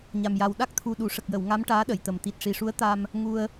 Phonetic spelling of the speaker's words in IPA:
ɲa˨˩mja˨˩w ɗa˦˥k̚t̪ʰu˨˩ ɗu˨˩˨ʂə˨˩k̚jə˨˩˨w ŋa˧˥m ʈaː˧˥ɗə˨˩˨jt̪ə˨˩m t̪i˨˩t̚ʂi˨˩ʂu˧˥ə̯t̪a˧m | ŋu˧ə̯

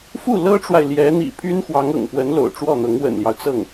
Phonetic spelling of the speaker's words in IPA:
fu˥˩lɤ˥ʈ͡ʂwa˨ɪ̯ ljɛ˧˥n̪ḭ˨˩pʰy˥nxwɑ˧˥ŋ ɤ̰˨˩ŋpwə˧˥n lo̰˨˩ʊ̯ʈ͡ʂwɔ˥˩n̪ɤ˧˥ŋ wə̰˨˩nljɑ˦ʊ̯ t͡sɤ˥˩ŋ

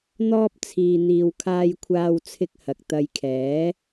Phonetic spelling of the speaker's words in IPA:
n̪ɔː˥p̚t͡sʰiː˧n̪iː˧w kʰaː˧jkʷʰaː˧wt͡sʰɪ˧k̚ hɐ˨k̚t̪ɐ˧jkʰɛː˨˥

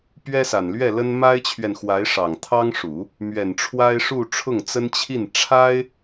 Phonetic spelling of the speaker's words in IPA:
pɥɛ˥sa˨˩nlɥɛ˥˩ lə˥n ma˥ɪ̯t͡ɕʰɥɛ˨nxwa˧˥ɪ̯ ʂɑ˨˩ŋt̪ʰɑ˥ŋʂu˨˩˦ | mɥɛ˨˩nʈ͡ʂʰwa˥ɪ̯ʂu˥˧ ʈ͡ʂʰʊ˥˩ŋt͡sə˥nt͡ɕʰi˥˩n ʈ͡ʂʰa˥ɪ̯

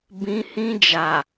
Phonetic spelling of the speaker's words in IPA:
bĩ˦hĩ˦d͡ʒa˨

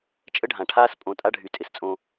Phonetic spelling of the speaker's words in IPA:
t͡ʃʼə˦ɖʱã˨ʈʰaː˦s pʼõ˨tʼa˦ɖʱy˨ tʼɪ˨st͡sʼõ˦

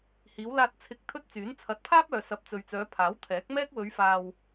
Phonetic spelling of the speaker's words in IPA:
hiː˨˧wlaː˧t̚ t͡sʰɪ˨˥k̚ t̪ʰɵ˥t̚t͡syː˨˥n t͡sʰɐ˨˥t̚pʰaː˥p̚œː˨ sɐ˨˥p̚t͡sɵ˨ɥt͡sœː˨˧ pʰaː˨˥wt̪ʰɛː˨˥k̚ mɛː˥k̚wɵ˨˧ɥfaː˨w

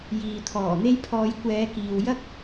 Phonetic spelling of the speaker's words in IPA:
jiː˨t̪ʰɔː˨˩n̪e˥jpʰɔː˧j kʷɛː˨˧ kiː˨wjɐ˥k̚

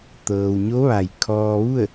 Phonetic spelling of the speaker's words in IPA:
t̪ɤː˩wɲo˧˥ʋa˩j kʰɔː˧ʋu˥˨ə̯

